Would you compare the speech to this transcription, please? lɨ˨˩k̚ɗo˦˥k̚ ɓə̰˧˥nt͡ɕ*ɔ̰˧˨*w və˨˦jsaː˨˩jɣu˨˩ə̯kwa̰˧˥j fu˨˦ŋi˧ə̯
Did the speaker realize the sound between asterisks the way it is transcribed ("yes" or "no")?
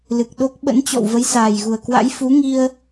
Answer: yes